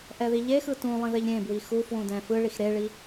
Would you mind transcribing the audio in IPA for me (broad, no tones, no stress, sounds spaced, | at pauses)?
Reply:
ʔ ɛ ð i ʎ e x ɯ t ũ lˠ ĩ ð e ʎ ɾʲ ẽ b w i x u f w ũ d ɛ̃ f ɯ ɭ i x ɾ e ɭ i